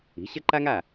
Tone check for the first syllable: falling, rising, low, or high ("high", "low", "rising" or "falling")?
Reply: rising